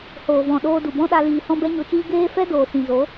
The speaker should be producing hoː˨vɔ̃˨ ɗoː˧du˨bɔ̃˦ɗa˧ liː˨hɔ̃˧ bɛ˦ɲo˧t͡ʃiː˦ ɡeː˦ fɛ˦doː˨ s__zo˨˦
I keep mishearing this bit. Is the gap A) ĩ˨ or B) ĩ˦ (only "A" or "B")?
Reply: A